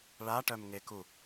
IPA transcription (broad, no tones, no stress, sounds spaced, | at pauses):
ɭ a ʈ œ m ŋ e k u